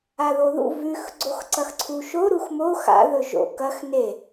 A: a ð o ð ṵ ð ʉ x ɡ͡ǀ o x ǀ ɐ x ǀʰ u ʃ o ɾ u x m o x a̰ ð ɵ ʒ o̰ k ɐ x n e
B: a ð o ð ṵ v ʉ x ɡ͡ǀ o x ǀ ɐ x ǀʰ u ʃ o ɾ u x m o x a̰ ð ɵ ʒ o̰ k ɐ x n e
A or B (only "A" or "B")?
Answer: B